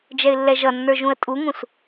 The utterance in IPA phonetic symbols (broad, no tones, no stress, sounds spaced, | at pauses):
d͡ʒ ɛ ɪ̯ lː ɛ ʒ ʌ nː ə˞ ʒ ũ ə̯ tʼ u ŋ ũ s